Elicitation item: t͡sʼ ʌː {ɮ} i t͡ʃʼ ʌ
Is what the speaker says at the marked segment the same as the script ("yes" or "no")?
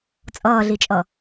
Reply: yes